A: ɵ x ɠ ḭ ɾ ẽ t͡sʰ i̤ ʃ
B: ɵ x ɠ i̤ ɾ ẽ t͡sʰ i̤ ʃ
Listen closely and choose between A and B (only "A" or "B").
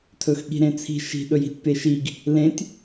B